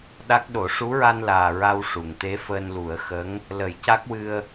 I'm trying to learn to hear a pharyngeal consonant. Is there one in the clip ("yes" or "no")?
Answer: no